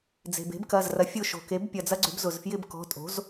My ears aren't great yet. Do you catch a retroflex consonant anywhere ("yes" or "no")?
no